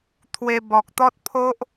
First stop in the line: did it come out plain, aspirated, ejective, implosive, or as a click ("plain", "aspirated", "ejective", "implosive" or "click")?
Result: aspirated